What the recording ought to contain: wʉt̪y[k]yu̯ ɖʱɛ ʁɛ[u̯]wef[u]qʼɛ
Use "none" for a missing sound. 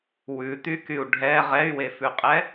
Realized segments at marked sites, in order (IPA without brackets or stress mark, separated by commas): k, y̯, ʉ